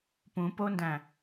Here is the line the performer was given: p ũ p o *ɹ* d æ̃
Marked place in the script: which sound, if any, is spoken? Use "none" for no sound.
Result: n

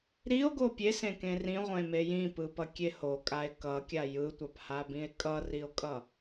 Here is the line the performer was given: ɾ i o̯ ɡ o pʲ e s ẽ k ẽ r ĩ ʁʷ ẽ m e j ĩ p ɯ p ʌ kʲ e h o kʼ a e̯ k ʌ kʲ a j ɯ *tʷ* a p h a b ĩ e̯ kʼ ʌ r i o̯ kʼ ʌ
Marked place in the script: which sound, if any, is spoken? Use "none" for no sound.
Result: tʷ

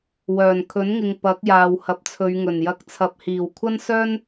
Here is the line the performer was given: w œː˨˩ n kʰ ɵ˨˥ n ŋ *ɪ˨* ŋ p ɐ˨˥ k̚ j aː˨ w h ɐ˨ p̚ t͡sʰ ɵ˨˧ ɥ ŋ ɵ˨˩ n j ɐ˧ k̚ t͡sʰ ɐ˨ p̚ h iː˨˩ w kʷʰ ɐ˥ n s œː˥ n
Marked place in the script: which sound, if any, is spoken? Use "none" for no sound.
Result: ɪ˨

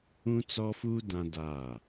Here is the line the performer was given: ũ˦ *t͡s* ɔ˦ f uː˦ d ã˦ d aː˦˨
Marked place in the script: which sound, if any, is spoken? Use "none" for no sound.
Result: t͡s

